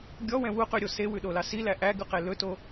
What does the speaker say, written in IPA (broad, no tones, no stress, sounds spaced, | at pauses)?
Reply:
ɡʲ ɔ w ɛ̃ w u q y ɾʲ o s e w ʉ ɗ o l ɑ s i l æ ʔ æ ɡ ʉ q e l ɵ t o